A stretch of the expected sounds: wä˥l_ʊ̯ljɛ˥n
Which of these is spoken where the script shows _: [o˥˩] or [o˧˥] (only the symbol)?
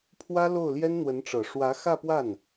o˥˩